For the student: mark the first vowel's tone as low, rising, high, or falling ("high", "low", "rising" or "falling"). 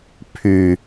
low